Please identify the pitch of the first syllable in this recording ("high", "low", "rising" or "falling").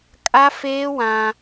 high